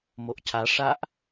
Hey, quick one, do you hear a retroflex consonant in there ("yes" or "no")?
yes